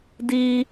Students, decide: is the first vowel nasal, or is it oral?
oral